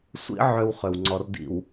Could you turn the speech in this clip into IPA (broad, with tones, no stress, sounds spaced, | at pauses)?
sʷ ḭ˦ ʕ ø˦ w χ ø˨ w ŋ͡ǀ ɔ˨ r d ḭ˨ w